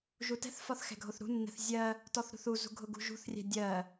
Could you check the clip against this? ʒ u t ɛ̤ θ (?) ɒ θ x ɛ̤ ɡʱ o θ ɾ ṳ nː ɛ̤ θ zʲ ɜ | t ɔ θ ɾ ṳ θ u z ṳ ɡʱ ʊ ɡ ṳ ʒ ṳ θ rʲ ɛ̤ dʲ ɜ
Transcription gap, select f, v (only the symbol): f